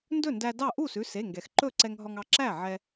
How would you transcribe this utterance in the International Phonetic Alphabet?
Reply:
n d ɵ˥˩ n d æ˧ d ɑ˥˩ ʔ u˥˩ s ʉ˩˧˩ s e˩˧˩ ŋ ɡ ɛ˩ x ǃ ɵ˥˩ ǀ ɛ˧ ŋ ɦ ɔ˧ ŋ ɑ˧ ǁ æ˥˩ ʕ ɛ˧

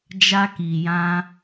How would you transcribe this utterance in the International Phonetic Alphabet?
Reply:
d͡ʒ a˧ k i˨ j ã˧

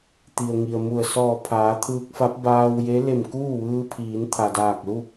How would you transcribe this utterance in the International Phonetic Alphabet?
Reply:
t̪ i˩ ə̯ ŋ i˩ ə̯ m u˧˩ ə̯ s ɔː˧˩ pʰ aː˩˧ t̪ʰ ɯː˧ k̚ f a˧˥ p̚ b aː˧ w j e˧˥ l e˧˩ m k uː˥˨ ʋ ɯː˧ pʰ iː˩˧ n t̪ʰ a˩ d aː˧˩ k̚ l u˥˨

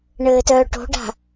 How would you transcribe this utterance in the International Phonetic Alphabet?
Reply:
ɳ ɘː t œː ʈ o̤ ɖ a̤

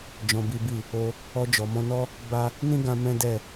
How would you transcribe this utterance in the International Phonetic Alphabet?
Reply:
d͡ʒ ɔ̃˧ b i˦ b i˦˨ | o˧ | ɔ˧ d͡ʒ ɔ˨ m ɔ̃˧ n ɔ˦ | b a˦ | n ĩ˦ ɡ ã˧ m ɛ̃˦ d ɛ˦˨

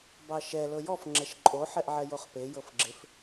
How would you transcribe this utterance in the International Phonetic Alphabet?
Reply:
b ɑ ʃ ɛ l ɤ j ɔ f ŋ͡ǁ ɛ ʃ ǃʼ o ħ ɛ ʔ ʕ ɛ j o χ p e j ɤ f ɡ͡ǁ ɪ f

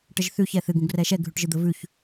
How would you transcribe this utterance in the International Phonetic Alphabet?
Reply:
ʈ ə ʒ θ ʉ ç ɛ θ ɨ ɡ ũ ɡ r ɛ ʃ ɛ ɡʱ ʉ ʈ ʒ ɨ d̪ ə v ʉ ç

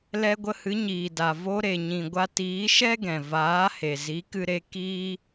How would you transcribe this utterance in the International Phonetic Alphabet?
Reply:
l ɛ˧ ɡʷ ə˧ h ɨ˨˦ ɲ iː˨ d a˨ v o˧ ɾ e˨ ɲ ĩ˨ ɡʷ a˧ t iː˨˦ ʃ ɛ˦ ɡ ɛ̃˨ v aː˨˦ h e˨ z i˨˦ k ɨ˧ ɾ e˧ k iː˦

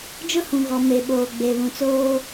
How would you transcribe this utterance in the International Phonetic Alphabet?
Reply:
d͡ʒ ʊ˦ h ũ˨ ɣ ɔ˨ m e˨ ɓ oː˨ ɡ͡b e˨ β ũ˨ t͡s oː˦

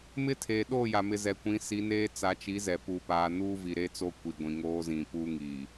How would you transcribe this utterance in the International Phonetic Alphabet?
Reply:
m ɪ˦ tʰ eː˨ ɗ oː˦˨ j a˨ m ɪ˨ z ɛ˨ kʷ ĩ˨˦ s i˨˦ n eː˦ t͡s a˨˦ t͡ʃ i˨˦ z ɛ˨ p u˨ p aː˨ n uː˦ v i˨ ɾ e˦ t͡s o˦ kʷ i˨ ɡʷ ĩ˨ ŋ oː˦ z ĩ˨ p uː˦ ŋ iː˨

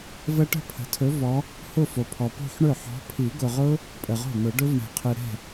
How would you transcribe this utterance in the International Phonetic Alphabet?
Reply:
v ə˦˥ ʈ ə̤˥˩ pʰ ə̤˨ tʰ ɵ˨˦ v ɔ˨˦ | h ʊ˥˧ f o˨ pʰ ɔ˨ p o̤˥˧ ħ ɳ ɵ˥˩ ħ ɔ̤˨˦ pʰ i˨˩˦ ɡ ʊ˨ ʁ ʊ˦˥ | pʼ ə˨ ʁ o̤˥˩ n ʊ˨˩˦ ɖ ɵ˦˥ v ɳ ɛ̤˨ qʰ ɨ˨ ɾ ɛ̤˥˩

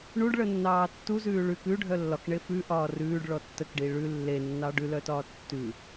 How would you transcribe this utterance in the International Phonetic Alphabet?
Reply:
ɳ u ɖ ɭ ə nː ɑː tː u z ʉː ɭ ʉ k ʉ ɖʱ œ lː ɒ k ɳ e f ʉ ʔ ɒː r ʉː ɖ ɭ ɔ tː ə k ɖ i ɭ ʉ lː e nː ɑ ɖ ʉ l œ t ɒː tː ʉ

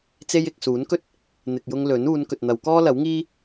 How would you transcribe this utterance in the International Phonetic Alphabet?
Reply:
t͡s e˧ j ɪ˨ k̚ s uː˨˥ n k ɵ˥ t̚ | n̪ ɪ˨ k̚ j ʊ˧ ŋ l ɵ˨˥ n uː˨˧ n k ɵ˨ t̚ n̪ ɐ˨˧ w k ɔː˥ l ɐ˨˥ w ŋ iː˥

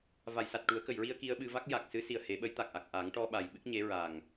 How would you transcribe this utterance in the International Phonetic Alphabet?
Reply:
v a˨˩˨ j s a˨˩ t̚ ʈ u˨˩˦ ə̯ k ə˨˩˨ j ɹ i˧ ə̯ k i˧ ə̯ ɓ ɨ˧ v a˦˥ k̚ j a˨˩ k̚ s ɨ˧˥ s i˨˩ ə̯ h e˨˩˦ ɓ ə˧˥ j t̪ a˨˩ k̚ ʔ a˨˩ k̚ ʔ a˨˩˦ ŋ ʈ ɔ˧ ɓ a˨˩ j ɓ ɨ˦˥ k̚ ɲ e˧˥ ɹ a˨˩ ŋ

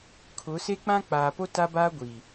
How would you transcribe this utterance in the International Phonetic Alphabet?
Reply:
kʰ ʊ˨˦ s e˦ k͡p ã˦ k͡p aː˨ p o˦ t a˦ b aː˦ ɡʷ iː˨

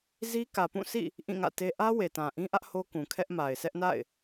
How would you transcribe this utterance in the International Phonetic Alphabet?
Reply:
z i˦ k ä˨ p ũ˦˨ s ḭ˦˨ | ʔ ĩ˦˨ ŋ ä̰˦˨ t e˦ ʔ ä˦ w e˨ t ã˨ ʔ ĩ˦ ʔ ä˦ ʔ h o˦ k ũ˨ kʰ ɛ˦ ʔ m a˨ ɪ̯ s ɛ˦ ʔ n a̰˦˨ ɪ̯

